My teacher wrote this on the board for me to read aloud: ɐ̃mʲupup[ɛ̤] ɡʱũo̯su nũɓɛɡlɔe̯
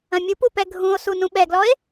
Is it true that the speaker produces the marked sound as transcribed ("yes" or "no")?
no